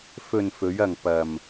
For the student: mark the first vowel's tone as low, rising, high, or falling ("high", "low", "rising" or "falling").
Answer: low